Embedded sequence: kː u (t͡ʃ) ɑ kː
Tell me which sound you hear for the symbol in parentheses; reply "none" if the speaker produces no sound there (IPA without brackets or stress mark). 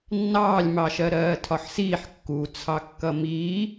t͡sʰ